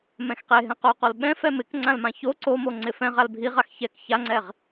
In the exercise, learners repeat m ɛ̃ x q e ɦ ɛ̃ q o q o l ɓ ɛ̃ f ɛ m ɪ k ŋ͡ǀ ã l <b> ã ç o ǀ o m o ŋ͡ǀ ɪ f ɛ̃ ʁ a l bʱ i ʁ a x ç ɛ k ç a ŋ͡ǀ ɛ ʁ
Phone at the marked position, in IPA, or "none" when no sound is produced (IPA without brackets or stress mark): m